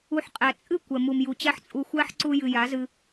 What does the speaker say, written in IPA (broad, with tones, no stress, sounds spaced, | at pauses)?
u˧ ħ qʼ æ˨ t͡sʼ ɨ˦˨ kʷ ɛ˨ m u˨ m j u˨ t͡ɕ æ˦ ħ t͡sʼ u˧ xʷ æ˦ ħ ǀ u˧ j ɨ˨ j a˨˦ z ɨ˧